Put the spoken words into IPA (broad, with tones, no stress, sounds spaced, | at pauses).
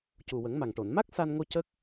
c u˨˩ w ə˨˩˦ ŋ m a˨˩ ŋ ʈ o˨˩˨ n m a˦˥ k̚ s a˧ n ŋ o˧ c ə˦˥ k̚